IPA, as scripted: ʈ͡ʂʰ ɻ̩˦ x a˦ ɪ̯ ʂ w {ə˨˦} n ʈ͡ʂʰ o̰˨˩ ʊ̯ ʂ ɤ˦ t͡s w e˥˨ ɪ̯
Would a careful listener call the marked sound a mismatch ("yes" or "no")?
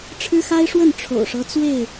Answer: yes